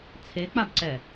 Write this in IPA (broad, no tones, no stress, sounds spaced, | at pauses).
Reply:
t͡sʰ e k͡p a b ǀ ɛ